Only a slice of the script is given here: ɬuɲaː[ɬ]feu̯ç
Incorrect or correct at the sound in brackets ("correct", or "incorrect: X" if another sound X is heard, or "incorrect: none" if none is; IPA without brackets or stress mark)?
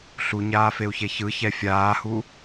incorrect: none